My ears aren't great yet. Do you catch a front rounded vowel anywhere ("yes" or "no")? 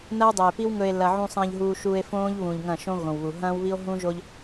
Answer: no